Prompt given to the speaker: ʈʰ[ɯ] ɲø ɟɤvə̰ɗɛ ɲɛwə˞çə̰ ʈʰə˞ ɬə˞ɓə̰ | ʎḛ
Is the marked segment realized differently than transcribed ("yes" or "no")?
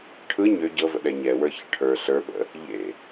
no